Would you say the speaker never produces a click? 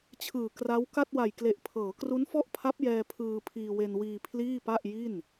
yes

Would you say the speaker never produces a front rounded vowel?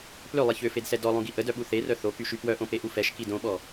no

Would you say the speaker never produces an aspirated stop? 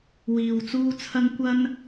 no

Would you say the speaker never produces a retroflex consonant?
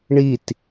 no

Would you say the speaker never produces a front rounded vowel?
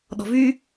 no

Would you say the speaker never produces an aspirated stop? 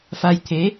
no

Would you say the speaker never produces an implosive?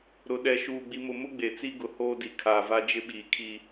no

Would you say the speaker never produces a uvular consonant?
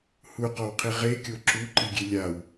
no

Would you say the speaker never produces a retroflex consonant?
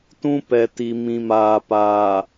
yes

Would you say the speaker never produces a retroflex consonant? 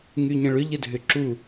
no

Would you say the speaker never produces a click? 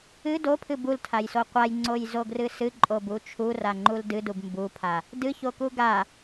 no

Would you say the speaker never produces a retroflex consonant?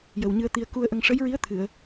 no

